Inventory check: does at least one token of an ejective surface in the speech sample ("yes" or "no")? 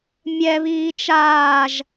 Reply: no